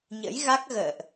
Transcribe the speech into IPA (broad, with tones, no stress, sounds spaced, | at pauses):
ɲ ə̰˧˥ j ɣ a˦˥ k̚ ɣ ə̰ː˧˨ ʔ